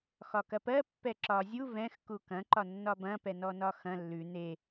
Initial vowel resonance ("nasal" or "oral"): oral